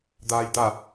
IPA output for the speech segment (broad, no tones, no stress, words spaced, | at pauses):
d̪aːjd̪a